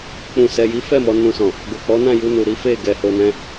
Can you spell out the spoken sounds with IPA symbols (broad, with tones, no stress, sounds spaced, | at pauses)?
k͡p ũ˨ s ɛ˨ j i˨˦ f ɛ˦˨ m ɔ˧ n ũ˧ s ɔ̃˨ | ɡ o˨ k͡p ɔ˨˦ n ã˦˨ j u˧ n u˨ ɾ i˨˦ f e˦˨ ɡ ɛ˨ h o˧ n ɛ̃˦